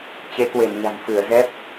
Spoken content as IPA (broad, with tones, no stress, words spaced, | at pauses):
t͡ɕe˨˦kwe˧˩nɲa̤˨˩n fɨ˧˩ə̯zɛ˦˥p̚